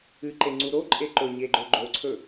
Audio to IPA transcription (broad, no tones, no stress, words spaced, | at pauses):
ɨǃeŋ͡ǀu ɾoǃʼe ǃɵɲeɡ͡ǃɵ ɡ͡ǃoǀʰɵ